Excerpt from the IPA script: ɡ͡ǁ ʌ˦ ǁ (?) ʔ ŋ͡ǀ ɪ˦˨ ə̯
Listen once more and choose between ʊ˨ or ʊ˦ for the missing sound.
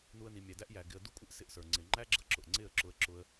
ʊ˨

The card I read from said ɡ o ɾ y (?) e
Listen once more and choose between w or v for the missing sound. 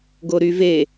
v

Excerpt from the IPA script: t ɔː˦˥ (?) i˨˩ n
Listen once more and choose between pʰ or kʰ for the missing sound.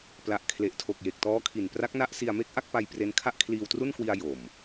kʰ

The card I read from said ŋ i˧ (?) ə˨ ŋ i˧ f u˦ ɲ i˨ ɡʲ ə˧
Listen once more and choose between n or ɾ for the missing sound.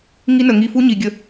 n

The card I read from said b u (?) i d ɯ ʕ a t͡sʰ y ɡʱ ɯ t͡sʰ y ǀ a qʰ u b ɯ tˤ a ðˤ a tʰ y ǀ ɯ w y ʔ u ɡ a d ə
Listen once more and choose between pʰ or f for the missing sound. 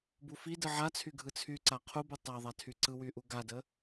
f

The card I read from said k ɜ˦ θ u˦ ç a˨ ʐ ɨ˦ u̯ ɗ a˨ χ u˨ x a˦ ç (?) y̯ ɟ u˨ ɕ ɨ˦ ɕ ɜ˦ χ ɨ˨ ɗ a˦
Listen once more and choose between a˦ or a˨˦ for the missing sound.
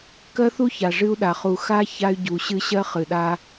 a˦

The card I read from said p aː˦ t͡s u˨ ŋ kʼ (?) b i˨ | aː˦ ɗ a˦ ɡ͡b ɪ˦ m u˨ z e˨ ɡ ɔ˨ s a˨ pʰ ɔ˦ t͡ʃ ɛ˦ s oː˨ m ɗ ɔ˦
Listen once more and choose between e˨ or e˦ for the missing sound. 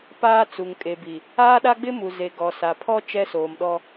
e˨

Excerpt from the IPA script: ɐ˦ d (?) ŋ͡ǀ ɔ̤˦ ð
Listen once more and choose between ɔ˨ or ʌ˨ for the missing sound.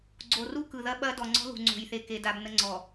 ɔ˨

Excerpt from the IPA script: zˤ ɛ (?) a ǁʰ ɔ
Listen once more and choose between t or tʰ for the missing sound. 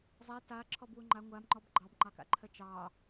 t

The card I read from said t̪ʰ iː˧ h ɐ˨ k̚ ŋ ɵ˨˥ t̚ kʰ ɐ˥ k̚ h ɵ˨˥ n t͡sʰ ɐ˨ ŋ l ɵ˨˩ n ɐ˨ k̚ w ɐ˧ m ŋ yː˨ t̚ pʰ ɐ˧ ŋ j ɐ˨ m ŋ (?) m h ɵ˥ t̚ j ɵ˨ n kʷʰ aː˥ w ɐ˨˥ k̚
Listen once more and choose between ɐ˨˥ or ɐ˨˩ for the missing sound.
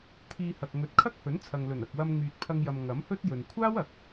ɐ˨˥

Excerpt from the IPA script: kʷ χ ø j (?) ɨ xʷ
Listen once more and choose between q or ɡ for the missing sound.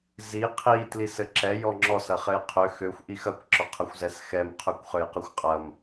q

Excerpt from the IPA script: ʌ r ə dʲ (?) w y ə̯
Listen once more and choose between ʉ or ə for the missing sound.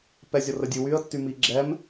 ʉ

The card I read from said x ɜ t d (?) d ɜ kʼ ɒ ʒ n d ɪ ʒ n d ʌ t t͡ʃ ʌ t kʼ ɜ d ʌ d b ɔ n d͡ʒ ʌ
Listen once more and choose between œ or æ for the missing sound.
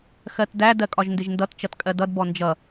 æ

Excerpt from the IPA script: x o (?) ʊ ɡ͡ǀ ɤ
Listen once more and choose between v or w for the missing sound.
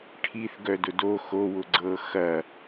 w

